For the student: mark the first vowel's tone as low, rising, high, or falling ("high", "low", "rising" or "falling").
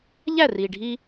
falling